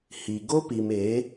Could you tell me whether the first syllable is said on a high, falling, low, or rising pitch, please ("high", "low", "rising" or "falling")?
low